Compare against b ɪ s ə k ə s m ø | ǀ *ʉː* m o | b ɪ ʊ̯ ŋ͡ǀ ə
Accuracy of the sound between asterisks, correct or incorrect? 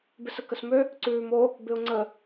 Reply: correct